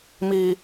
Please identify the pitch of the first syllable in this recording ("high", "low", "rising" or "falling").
low